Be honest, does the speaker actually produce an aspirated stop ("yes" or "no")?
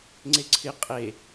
yes